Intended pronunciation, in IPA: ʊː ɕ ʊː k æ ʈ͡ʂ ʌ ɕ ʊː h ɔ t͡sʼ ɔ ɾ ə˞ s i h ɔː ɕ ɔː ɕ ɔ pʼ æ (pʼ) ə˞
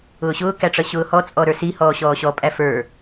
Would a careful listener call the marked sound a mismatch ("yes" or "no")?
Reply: yes